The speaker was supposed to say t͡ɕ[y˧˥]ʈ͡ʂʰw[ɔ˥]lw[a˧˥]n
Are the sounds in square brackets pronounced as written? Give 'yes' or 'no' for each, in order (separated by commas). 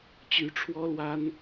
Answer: yes, yes, no